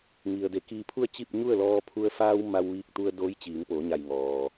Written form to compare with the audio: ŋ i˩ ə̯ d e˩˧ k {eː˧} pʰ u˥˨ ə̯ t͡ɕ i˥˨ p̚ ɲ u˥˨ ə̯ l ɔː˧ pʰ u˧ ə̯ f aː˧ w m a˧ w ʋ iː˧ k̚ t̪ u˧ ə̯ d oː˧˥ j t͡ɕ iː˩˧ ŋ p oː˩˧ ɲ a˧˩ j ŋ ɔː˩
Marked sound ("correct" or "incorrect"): incorrect